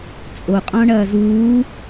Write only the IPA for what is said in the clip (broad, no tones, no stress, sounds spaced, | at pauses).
t͡sʼ o qʼ ɔ̃ ɳ ɐː z uː